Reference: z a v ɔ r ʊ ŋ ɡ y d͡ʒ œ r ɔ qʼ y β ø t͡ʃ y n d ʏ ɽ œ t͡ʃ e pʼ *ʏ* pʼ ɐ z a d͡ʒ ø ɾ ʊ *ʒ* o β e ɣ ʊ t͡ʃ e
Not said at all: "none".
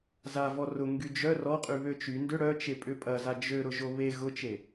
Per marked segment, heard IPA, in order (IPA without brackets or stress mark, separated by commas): ʏ, ʒ